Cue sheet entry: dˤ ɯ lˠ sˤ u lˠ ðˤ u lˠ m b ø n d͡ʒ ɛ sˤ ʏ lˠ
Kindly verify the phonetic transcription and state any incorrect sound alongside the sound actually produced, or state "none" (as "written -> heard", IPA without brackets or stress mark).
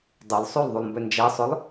none